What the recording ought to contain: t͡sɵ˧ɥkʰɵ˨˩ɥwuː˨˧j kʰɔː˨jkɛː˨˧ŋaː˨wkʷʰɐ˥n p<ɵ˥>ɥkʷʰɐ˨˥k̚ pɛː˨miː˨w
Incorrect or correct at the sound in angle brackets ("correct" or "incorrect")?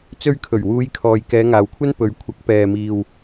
incorrect